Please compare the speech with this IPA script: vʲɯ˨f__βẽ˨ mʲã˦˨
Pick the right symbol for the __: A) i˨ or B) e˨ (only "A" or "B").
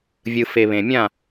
B